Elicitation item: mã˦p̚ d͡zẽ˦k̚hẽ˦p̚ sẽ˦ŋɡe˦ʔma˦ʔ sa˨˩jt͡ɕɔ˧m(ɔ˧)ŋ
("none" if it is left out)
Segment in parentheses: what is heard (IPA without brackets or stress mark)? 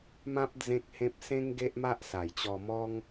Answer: ɔ˦